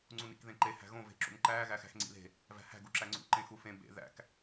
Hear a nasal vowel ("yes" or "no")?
yes